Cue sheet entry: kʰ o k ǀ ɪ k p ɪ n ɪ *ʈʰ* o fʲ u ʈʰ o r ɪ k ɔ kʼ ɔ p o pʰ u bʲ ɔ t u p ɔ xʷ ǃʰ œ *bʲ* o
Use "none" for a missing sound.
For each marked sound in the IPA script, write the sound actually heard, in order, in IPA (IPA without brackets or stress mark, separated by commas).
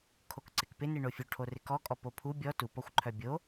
ɳ, bʲ